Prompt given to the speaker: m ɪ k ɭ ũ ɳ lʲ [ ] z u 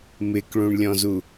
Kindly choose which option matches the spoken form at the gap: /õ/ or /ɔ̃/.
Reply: ɔ̃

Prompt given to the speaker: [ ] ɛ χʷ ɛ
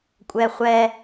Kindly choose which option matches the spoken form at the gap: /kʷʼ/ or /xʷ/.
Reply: kʷʼ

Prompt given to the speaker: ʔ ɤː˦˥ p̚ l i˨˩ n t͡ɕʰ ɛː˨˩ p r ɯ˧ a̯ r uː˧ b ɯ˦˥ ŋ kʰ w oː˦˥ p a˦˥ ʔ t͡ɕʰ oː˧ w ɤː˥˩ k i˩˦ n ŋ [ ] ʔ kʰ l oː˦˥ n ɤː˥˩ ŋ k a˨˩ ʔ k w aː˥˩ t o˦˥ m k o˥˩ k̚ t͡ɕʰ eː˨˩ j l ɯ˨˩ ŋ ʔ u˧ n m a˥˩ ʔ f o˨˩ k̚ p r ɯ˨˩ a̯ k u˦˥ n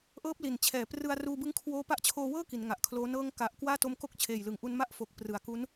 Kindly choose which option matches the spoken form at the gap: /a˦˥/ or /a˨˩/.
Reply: a˨˩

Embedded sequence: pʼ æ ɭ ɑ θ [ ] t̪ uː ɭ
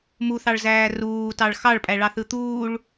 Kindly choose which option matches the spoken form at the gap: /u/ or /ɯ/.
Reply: ɯ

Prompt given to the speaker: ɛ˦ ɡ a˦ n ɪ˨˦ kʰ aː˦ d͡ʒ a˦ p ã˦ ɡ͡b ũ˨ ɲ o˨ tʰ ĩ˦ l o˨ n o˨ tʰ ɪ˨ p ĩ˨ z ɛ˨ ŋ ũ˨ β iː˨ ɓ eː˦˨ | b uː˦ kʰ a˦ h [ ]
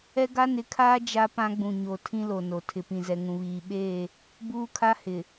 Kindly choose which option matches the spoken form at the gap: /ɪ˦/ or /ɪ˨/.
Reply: ɪ˨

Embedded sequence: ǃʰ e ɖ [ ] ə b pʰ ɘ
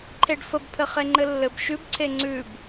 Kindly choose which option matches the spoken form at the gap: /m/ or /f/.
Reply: f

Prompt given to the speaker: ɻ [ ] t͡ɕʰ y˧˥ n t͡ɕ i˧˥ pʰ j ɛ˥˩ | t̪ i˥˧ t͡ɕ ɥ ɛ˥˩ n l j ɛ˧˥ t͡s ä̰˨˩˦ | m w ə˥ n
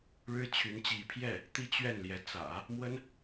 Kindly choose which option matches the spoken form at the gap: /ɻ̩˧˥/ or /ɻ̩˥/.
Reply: ɻ̩˥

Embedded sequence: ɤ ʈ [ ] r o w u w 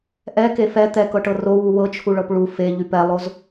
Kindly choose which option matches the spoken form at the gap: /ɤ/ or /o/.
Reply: ɤ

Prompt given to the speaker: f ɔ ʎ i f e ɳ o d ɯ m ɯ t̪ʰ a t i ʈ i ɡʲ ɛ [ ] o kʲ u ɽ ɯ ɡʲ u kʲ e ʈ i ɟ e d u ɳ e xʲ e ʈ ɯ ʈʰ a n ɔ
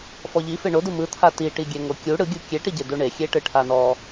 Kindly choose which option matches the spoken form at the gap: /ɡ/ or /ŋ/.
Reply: ŋ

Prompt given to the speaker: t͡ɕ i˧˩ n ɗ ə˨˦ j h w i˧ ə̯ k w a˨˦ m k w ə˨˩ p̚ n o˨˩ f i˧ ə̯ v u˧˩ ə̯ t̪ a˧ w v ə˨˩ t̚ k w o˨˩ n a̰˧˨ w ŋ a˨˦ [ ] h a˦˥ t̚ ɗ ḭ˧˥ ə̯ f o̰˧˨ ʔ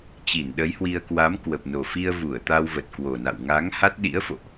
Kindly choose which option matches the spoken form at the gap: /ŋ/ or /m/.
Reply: ŋ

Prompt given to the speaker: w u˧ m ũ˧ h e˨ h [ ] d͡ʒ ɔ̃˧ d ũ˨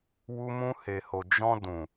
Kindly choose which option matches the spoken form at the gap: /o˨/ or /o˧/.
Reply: o˨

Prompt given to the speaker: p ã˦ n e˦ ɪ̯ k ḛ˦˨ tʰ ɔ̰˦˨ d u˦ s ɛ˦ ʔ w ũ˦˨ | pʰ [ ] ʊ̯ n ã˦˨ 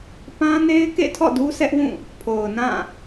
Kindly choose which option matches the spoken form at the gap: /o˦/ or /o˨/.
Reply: o˨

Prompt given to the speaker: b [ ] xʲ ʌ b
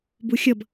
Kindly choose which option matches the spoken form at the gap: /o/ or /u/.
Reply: u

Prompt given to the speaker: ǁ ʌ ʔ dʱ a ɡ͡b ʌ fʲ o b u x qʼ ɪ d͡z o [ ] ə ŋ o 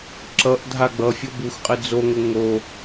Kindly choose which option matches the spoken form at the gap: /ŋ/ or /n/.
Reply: ŋ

